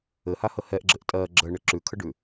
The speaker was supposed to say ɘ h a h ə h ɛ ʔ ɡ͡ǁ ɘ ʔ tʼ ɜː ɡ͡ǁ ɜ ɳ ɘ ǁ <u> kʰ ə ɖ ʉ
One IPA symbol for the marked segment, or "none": ʉ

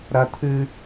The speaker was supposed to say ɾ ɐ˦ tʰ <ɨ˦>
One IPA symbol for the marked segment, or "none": ɨ˦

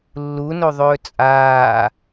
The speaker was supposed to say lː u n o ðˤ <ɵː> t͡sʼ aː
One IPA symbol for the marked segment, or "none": ɵː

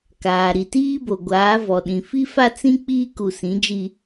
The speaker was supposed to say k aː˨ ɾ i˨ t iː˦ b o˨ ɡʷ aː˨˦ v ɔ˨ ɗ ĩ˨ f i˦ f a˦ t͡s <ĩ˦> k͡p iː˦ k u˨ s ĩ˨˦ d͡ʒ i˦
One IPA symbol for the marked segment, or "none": ĩ˦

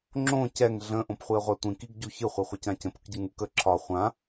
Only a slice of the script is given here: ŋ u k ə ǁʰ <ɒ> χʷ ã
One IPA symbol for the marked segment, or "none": ɒ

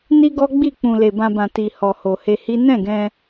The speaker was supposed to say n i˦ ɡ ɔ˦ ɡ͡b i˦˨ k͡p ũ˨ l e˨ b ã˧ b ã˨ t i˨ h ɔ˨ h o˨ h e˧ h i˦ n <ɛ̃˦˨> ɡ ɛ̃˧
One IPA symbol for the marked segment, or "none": ɛ̃˦˨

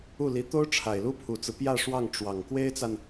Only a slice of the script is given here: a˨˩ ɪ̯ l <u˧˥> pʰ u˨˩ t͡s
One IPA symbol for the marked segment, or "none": u˥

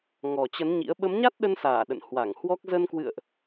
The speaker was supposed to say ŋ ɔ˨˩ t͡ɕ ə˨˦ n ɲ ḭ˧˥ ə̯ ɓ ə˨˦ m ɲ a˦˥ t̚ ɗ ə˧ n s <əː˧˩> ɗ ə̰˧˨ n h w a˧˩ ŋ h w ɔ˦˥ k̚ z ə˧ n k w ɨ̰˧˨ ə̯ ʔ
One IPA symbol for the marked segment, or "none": aː˧˩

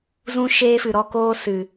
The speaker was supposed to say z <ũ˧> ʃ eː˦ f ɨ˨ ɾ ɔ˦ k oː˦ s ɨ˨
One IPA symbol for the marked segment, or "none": ũ˦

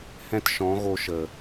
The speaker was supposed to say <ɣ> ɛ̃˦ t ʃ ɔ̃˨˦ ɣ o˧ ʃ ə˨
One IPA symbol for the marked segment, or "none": h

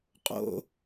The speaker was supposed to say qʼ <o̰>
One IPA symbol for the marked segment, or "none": o̰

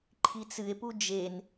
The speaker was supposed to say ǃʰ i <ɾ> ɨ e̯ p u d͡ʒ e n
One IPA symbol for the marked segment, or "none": t͡s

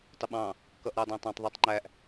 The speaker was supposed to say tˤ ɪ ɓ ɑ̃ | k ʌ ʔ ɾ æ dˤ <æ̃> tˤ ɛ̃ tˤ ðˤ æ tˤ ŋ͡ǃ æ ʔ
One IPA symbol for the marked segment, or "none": æ̃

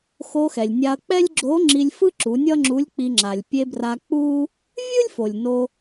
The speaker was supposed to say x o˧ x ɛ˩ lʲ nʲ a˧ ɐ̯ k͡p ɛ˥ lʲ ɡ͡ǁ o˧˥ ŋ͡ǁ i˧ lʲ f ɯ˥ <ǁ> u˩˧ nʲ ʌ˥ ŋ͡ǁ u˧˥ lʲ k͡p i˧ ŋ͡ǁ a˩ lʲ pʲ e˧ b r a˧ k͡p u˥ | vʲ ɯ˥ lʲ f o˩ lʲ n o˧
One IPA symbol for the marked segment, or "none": ǁ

